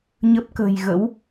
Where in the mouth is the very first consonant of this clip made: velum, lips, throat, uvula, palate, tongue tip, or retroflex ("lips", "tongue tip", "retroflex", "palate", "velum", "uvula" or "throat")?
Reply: palate